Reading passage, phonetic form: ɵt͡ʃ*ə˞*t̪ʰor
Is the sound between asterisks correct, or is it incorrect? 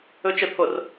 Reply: incorrect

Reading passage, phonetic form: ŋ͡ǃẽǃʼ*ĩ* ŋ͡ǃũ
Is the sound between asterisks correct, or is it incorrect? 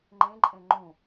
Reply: incorrect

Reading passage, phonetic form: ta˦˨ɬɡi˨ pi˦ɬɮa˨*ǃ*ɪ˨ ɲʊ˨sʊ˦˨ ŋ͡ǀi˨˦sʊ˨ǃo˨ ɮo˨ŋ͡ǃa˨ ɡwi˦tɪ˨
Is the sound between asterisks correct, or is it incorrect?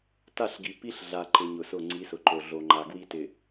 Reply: correct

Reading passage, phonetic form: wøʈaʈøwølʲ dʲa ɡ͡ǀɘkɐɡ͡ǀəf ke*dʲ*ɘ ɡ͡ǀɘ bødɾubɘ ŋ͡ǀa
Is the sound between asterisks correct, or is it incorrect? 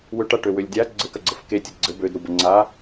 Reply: incorrect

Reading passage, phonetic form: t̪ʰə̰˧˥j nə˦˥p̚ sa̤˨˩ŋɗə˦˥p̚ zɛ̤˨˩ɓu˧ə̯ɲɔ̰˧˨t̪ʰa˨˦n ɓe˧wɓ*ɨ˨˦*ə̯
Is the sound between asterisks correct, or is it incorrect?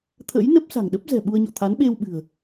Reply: incorrect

